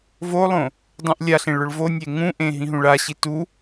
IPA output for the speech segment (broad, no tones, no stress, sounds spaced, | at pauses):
v o lˠ õ | dˤ ũ ʔ lʲ a ɬ ẽ ɭ ʊ ɭ v o nʲ e ŋ ũ ʔ ẽ ɦ ĩ ɦ ũ ɭ a ɕ i t u